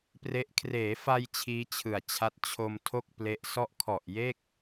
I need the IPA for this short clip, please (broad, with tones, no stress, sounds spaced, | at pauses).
p r e˦˥ ʔ kʰ r eː˩˦ f a˧ j t͡ɕʰ iː˦˥ t͡ɕʰ ɯ˨˩ a̯ t͡ɕʰ a˦˥ t̚ t͡ɕʰ o˧ m tʰ o˥˩ k̚ p l e˦˥ ʔ s ɔ˦˥ ʔ kʰ ɔ˨˩ ʔ j e˥˩ k̚